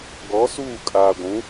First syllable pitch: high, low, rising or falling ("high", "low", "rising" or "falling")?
rising